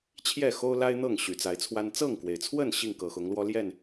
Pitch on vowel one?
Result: falling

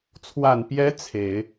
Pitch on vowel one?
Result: low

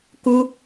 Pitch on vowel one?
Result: high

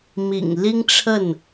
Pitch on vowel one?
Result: low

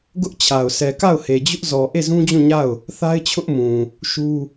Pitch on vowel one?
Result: high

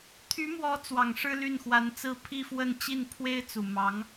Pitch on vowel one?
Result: rising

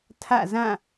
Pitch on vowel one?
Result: falling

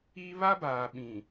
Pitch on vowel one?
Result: high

